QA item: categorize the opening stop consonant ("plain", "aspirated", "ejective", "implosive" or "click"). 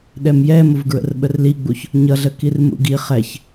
implosive